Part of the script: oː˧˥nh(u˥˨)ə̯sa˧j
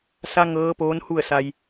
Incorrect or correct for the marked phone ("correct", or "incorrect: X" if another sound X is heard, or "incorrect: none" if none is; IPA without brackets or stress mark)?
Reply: correct